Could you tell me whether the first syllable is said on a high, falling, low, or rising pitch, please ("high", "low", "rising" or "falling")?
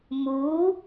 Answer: rising